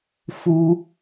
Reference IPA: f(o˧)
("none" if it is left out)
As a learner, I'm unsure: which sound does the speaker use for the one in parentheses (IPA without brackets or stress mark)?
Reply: u˧